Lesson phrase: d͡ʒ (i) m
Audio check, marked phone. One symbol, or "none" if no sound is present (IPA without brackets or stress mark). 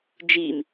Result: i